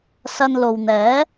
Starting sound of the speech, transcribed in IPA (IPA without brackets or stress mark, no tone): s